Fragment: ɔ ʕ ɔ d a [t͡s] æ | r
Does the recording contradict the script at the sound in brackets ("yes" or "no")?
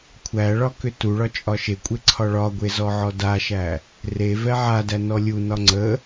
yes